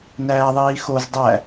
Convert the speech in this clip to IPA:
n æː ðˤ iː x o z dˤ æ

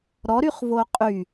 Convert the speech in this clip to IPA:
ɾ ɔ ɾ y χ v o qʼ y

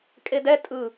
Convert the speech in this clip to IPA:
kʼ e d ɛ tʼ ɯ

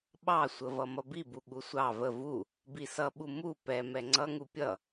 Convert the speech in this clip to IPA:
ɓ ɑ sʷ ə v ʌ m ʌ b i b u ɠ u sʷ ɑ v ə v u | b i s ʌ ɓ u m u p ɛ m ɛ ŋ͡ǀ ʌ ŋ u pʲ ʌ

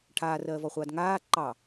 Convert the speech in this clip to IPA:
ʈʰ aː r ɜː v ɔ χʷ aː d ŋ aː ǃ ɑ

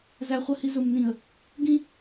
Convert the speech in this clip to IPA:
z æ χʷ ɜ h i z ʊ m n ĩ ə̯ | ɡ ĩ

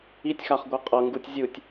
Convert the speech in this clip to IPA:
i tʲ x a χ ɡʷ ɤ qʼ ɤ ŋ ɡ u tʲ zʲ ɯ tʲ

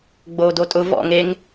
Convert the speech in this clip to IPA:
ɡ͡b oː d o tʼ ʊ v ɔ̰ ŋ e ŋ

